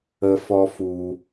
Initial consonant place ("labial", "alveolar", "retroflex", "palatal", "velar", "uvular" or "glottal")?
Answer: labial